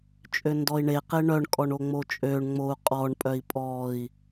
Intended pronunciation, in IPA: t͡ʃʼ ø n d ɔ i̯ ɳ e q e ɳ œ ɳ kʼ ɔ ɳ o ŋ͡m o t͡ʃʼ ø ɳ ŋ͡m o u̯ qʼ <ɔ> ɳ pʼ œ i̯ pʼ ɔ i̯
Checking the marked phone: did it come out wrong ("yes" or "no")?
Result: no